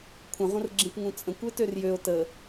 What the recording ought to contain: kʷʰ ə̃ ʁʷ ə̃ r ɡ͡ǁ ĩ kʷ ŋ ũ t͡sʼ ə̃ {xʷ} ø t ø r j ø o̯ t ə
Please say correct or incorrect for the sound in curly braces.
incorrect